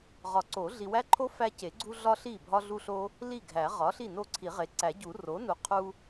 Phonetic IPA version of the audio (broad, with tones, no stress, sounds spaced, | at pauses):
ʁ ɒ˨˩˦ ǀ o˨˩˦ ɮ i˨ w æ˦ ǃʰ o˦ f æ˦ c e˨˩˦ ɡ͡ǀ u˦ ɮ ɒ˦ ɬ i˥˩ bʱ ɒ˦ ɮ u˦ ɬ o˦ | l i˥˩ ɡʱ æ˨˩˦ ʁ ɒ˩˥ ɬ i˥˩ n o˥˩ ǀʰ i˨˩˦ ʁ e˩˥ ǀ æ˨˩˦ ɟ u˨˩˦ r o˩˥ n u˩˥ qʰ u˦